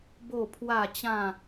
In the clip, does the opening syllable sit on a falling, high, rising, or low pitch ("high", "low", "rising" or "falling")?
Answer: falling